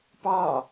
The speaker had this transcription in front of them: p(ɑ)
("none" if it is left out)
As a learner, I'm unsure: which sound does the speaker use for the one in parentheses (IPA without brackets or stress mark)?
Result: ɑ